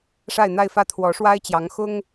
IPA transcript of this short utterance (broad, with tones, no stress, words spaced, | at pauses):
ʂa˥˧ɪ̯n̪a˥˧ɪ̯fä˥˩ t̪ʰwɔ˧˥ʂwa˥ɪ̯t͡ɕjɑ˧˥ŋ xʊ˥ŋ